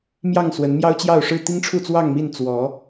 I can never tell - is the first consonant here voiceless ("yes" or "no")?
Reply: no